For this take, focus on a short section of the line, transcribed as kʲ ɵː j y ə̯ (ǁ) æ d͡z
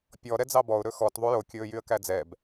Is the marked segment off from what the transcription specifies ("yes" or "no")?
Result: yes